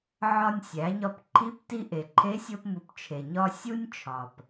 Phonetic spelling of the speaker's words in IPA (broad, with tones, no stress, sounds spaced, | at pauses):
ʕ ɒ˧ nʲ sʲ æ˩˧ ɲ ɒ˧ p ǃʰ i˧˥ p t i˧ ʔ e˩ ǃʰ e˧˥ sʲ o˧ p m u˩˧ p t͡ʃʰ e˩ ɲ ɒ˧ sʲ u˥ nʲ t͡ʃʰ ɒ˩ p